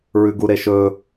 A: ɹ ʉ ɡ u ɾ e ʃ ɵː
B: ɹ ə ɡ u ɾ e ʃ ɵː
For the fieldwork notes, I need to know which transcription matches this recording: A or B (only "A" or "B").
A